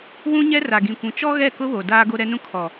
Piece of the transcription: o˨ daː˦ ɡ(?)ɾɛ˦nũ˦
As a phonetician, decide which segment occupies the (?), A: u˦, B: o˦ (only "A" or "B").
B